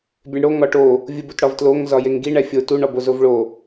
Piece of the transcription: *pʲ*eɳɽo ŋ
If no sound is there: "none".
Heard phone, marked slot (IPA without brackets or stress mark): bʲ